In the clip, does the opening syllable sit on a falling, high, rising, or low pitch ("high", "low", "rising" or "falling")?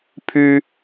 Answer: high